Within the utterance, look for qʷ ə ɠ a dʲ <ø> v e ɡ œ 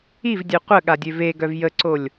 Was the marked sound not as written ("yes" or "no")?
no